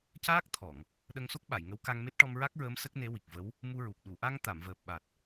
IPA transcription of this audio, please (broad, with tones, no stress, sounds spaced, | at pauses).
c aː˦˥ k̚ t̪ʰ ɔ˨˩˨ ŋ | ɗ ə˧ ŋ s o˦˥ k̚ ɓ a˨˩˨ j ŋ ə˧˥ w k a˧ ŋ m e˦˥ t̚ ʈ ɔ˧ m ɹ a˦˥ k̚ ɹ əː˧˥ m s ə˦˥ k̚ n e˧˥ w i˨˩ k̚ v ə˧˥ w | m u˧ ɹ u˨˩ p̚ ɗ u˨˩˨ ʔ a˧ ŋ t̪ a˨˩˨ m v əː˨˩ p̚ ɓ a˨˩ t̚